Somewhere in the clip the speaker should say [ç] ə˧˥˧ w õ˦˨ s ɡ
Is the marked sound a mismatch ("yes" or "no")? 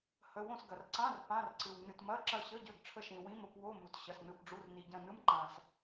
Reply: yes